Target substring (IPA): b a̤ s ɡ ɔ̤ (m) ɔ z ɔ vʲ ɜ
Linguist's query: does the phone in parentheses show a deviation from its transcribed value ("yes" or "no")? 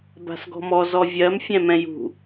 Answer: no